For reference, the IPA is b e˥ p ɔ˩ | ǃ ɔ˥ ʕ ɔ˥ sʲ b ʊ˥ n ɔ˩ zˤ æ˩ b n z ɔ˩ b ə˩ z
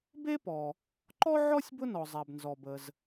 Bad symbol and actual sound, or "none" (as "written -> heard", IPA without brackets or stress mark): none